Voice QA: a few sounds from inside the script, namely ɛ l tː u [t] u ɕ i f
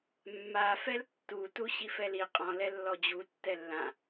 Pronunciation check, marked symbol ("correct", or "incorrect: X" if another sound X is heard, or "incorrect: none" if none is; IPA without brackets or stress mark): correct